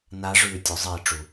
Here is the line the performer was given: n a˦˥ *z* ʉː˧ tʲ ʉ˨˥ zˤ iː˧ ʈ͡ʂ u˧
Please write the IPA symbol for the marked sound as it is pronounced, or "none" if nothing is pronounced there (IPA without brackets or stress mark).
ʐ